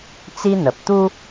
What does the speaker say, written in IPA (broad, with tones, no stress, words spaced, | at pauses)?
t͡si˦n̪ə˨p̚ t̪u˦